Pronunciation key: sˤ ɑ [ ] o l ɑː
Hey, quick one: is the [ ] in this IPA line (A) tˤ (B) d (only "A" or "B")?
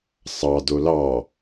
B